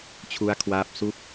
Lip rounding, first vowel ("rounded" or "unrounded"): rounded